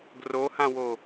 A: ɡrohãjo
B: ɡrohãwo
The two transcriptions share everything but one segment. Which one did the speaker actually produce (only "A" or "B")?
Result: B